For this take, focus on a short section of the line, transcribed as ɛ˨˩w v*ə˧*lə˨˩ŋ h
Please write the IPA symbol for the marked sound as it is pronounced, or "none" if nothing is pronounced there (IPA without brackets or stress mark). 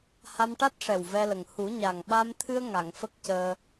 ɛ˧